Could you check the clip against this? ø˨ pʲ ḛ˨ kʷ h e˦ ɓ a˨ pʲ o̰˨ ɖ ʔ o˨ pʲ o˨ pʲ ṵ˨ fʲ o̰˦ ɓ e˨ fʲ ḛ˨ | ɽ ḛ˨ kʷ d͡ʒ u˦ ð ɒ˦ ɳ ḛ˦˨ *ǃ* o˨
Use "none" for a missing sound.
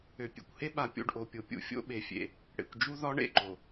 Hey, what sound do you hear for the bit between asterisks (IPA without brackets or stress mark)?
ǃ